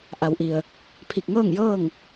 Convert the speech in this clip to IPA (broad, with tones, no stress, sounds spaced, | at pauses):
ʔ a˩˧ w ʔ i˩ ə̯ | pʰ i˧˩ k̚ ŋ ɤː˥˨ ŋ j ɤː˥˨ ŋ